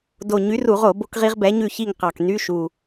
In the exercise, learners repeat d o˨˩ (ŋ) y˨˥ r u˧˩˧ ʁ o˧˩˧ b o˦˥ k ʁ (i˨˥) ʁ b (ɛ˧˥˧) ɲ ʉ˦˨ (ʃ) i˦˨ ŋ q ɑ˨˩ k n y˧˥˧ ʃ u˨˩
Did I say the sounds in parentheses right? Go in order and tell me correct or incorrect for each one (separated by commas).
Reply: incorrect, incorrect, incorrect, incorrect